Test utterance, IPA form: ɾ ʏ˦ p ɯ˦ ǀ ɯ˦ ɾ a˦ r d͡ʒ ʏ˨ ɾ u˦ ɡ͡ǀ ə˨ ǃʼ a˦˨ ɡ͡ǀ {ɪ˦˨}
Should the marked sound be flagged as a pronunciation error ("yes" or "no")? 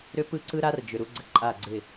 no